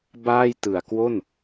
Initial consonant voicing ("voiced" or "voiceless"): voiced